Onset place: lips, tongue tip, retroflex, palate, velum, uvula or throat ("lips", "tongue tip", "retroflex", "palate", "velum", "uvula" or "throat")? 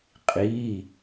uvula